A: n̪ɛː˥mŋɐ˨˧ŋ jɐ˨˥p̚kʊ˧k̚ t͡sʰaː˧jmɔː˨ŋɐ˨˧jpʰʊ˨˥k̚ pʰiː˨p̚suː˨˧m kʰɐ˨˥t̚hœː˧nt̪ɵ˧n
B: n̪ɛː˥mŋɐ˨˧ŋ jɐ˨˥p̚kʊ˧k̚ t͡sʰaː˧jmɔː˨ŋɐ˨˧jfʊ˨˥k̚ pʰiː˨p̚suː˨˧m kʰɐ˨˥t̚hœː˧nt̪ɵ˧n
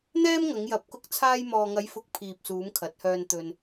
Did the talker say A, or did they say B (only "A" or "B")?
B